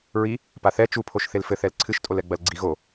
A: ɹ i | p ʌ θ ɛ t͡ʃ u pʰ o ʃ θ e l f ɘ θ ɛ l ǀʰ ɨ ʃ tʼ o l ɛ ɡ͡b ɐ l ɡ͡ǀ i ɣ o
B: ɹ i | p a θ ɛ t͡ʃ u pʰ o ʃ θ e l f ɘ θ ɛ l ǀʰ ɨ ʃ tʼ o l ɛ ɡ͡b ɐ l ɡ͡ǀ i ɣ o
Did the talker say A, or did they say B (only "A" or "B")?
B